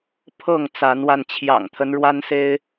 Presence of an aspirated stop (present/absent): present